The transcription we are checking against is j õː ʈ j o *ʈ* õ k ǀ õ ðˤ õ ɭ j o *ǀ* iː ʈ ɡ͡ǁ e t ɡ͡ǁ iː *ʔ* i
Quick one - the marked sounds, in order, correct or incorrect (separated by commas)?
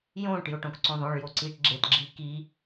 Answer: correct, correct, incorrect